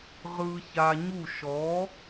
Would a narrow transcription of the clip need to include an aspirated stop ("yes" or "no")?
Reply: no